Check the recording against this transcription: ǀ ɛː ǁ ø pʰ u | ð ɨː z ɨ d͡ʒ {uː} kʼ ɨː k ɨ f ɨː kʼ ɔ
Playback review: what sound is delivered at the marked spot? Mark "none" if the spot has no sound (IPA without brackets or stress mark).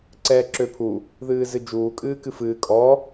uː